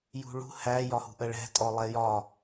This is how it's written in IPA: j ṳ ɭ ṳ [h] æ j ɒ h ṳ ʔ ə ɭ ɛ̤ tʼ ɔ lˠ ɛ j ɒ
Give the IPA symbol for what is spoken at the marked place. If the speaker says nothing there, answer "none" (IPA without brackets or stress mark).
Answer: h